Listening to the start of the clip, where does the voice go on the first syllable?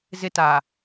high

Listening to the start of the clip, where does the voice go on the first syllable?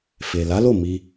low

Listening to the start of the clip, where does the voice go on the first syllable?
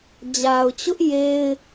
low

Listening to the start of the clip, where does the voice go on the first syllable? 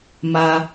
high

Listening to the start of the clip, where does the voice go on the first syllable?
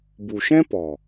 low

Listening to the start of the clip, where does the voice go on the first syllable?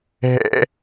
high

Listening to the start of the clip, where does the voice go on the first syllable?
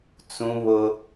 high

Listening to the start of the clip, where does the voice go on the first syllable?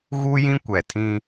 high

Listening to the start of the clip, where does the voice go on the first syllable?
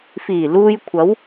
low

